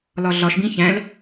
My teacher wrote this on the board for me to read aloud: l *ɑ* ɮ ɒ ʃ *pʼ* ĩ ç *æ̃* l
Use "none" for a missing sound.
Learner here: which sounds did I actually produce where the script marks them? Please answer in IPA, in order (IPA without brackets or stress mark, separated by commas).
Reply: ɒ, b, æ̃